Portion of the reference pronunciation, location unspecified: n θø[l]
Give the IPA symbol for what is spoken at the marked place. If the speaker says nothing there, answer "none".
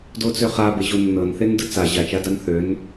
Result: n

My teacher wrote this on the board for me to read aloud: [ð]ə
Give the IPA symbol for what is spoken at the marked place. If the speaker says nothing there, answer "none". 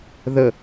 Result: ð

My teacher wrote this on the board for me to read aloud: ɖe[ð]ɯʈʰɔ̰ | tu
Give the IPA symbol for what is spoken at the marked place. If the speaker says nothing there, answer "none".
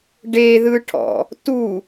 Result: ð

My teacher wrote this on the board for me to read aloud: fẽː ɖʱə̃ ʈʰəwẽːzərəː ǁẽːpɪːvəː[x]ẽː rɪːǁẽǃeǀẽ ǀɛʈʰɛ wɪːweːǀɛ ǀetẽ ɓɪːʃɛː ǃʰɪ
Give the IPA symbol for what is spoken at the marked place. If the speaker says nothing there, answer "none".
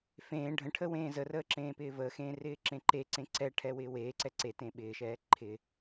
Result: x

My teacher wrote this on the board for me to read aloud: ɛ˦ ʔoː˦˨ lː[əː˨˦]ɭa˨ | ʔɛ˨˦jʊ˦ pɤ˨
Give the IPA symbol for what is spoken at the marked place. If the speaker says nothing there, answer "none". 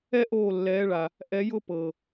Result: ɛː˨˦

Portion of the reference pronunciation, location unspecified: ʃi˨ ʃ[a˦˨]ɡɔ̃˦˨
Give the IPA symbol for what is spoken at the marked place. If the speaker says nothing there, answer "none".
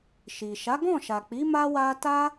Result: a˨˦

